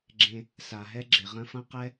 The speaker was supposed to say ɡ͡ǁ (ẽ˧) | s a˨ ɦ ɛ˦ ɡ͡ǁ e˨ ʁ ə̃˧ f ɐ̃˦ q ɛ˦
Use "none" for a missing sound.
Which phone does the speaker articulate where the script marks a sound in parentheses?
ẽ˧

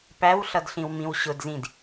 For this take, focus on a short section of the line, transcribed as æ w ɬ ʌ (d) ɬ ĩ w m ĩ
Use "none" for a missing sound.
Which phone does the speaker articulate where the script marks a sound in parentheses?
d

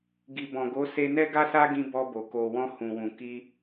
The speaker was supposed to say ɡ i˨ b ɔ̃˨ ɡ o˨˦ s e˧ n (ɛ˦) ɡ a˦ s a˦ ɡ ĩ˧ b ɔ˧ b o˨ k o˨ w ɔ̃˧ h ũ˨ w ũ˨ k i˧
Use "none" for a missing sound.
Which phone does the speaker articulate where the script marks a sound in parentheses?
ɛ˦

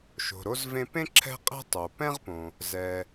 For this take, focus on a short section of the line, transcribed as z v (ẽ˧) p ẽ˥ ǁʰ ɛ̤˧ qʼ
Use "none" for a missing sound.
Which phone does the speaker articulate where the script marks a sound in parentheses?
ẽ˧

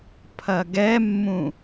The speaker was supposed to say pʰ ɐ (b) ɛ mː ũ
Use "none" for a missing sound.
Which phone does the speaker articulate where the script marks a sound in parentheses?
ɡ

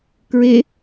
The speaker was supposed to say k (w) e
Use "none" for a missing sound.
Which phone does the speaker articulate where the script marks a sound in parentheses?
ɹ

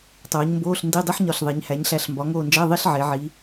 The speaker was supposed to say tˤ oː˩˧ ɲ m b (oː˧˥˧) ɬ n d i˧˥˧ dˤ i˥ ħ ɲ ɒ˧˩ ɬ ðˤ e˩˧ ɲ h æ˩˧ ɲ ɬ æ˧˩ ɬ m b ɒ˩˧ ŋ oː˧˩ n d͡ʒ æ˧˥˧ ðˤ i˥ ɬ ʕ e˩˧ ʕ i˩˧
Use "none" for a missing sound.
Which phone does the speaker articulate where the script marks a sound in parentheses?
oː˧˥˧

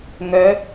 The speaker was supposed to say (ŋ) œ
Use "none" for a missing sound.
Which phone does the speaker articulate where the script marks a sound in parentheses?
ŋ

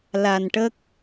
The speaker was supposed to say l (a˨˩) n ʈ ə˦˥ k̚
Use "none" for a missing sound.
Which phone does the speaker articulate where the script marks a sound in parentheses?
a˨˩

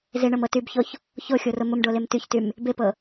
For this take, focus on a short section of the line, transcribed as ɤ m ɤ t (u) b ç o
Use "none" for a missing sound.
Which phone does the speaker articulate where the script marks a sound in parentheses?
y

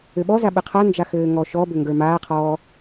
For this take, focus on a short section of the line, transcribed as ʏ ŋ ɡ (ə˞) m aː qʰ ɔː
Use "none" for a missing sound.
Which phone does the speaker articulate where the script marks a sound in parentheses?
ə˞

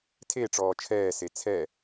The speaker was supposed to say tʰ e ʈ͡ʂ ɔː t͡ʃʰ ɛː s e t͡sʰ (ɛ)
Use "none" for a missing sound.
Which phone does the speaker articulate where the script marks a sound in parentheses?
ɛ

